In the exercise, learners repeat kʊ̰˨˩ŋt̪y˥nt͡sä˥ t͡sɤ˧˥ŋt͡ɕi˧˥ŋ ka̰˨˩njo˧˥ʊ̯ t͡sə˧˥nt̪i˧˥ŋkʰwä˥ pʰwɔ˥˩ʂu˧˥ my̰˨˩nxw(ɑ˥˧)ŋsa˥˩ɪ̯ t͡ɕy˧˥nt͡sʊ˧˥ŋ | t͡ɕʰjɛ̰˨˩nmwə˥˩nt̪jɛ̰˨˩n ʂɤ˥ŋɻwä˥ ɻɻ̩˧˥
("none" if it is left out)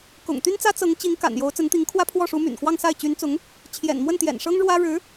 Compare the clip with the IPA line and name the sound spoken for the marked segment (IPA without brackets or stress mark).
ɑ˥˧